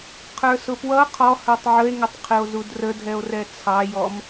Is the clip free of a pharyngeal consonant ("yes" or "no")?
no